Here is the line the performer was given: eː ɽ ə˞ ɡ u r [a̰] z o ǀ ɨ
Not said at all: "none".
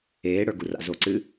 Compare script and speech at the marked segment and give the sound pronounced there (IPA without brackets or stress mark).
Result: a̰